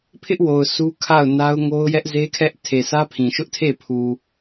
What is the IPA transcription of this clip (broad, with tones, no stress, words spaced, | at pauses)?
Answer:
pʰɪ˦ʔwo˨ʊ̯ su˦ kʰa˦˨ʊ̯na˦ʊ̯ŋo˦ʊ̯ jɛ˦ʔze˦kʰɛ˦ʔ tʰe˨sʰä˦ pʰĩ˨ʃʊ˦ʔtʰe˦˨ pʰu˨